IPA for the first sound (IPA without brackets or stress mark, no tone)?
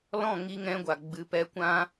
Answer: l